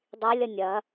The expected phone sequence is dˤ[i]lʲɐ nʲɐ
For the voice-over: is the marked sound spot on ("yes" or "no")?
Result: yes